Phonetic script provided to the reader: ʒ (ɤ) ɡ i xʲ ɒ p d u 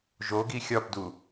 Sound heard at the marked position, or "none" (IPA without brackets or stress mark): o